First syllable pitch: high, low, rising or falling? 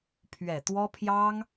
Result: low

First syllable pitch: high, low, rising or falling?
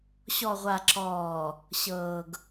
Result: low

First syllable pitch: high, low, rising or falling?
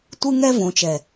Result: high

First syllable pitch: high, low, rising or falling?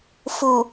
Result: low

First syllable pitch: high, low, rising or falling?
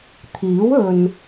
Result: rising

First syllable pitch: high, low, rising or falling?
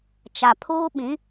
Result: low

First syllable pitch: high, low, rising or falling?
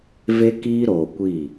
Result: high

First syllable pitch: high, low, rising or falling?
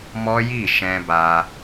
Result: high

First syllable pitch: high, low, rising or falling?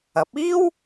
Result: rising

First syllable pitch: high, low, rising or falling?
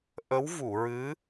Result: rising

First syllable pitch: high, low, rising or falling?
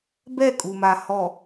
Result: falling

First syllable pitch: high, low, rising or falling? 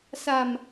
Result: low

